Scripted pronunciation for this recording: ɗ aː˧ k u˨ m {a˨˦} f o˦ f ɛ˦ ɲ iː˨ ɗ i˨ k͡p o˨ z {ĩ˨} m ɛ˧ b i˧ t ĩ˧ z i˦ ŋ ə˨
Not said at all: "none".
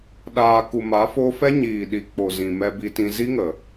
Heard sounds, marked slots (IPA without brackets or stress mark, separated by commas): a˨˦, ĩ˨